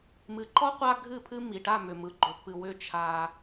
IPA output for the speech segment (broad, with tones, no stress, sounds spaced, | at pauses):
m ɨ˨ ǃ ɔ˦ qʷ a˦ ɡʱ ɨ˦˨ pʰ ɨ˦ m i˨ ʈ a˦˨ m ʏ˨ m ɯ˨ ɡ͡ǃ ʏ˨ pː ɨ˨ w ʏ˦˨ t͡ʃʰ a˦